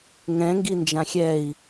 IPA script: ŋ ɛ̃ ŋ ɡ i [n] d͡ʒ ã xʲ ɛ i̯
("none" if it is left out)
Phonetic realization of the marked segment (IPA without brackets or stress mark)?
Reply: n